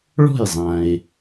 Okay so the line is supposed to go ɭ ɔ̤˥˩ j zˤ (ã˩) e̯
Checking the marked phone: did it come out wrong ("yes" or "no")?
no